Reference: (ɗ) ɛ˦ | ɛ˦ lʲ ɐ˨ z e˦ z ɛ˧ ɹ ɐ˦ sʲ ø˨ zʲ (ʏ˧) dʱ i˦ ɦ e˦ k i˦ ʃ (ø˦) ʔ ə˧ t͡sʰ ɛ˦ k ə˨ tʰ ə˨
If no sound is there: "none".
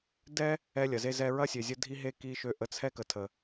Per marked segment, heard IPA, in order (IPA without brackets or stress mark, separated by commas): d, ə˧, ø˦